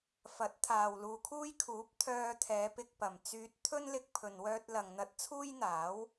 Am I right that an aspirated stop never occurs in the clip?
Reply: no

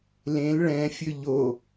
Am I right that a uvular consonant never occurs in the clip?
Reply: yes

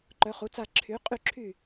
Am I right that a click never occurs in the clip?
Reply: no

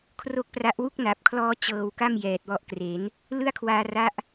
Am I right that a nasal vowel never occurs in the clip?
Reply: yes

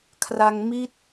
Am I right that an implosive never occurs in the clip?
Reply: yes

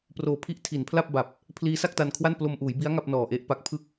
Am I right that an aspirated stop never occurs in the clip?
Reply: no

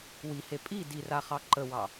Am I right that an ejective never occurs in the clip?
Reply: no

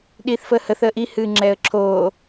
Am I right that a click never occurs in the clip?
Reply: no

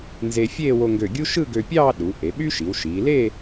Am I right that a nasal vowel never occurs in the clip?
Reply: yes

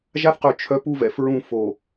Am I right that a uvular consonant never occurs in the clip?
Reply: no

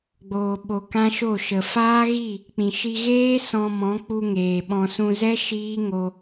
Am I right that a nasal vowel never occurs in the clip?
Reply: no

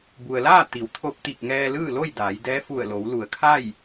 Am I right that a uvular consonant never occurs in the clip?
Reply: yes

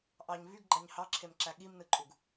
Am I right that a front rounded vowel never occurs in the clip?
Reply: no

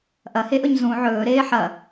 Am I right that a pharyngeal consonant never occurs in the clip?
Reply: no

